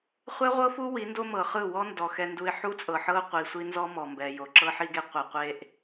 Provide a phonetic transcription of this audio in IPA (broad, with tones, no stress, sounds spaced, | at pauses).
χʷ ɛ˦ ʁʷ ɤ˦ f u˦ w i˨˦ n d o˦ m ɤ˨ χ ɯ˦˨ w ɔ˦ n d ɔ˨ x ɛ˦ n d u˦ ɪ̯ ħ u˦ t͡sʼ ɤ˨ ħ ɤ˦ ʊ̯ qʷ i˨ sʷ i˦ n z ɔ˦ m ɔ˨ m b ɛ˨ j o˨ ǁ ɤ˦ ħ i˦ ɡ e˦ qʷ ɛ˨ qʷ e˨ ʔ